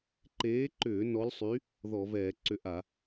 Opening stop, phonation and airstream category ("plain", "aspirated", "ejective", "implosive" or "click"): click